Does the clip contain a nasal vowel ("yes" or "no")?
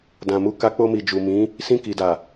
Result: yes